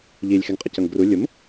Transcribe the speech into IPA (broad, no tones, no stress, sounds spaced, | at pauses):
ʎ i lʲ x ɛ ŋ qʼ ə c ʌ ŋ ɡ r u lʲ ʊ m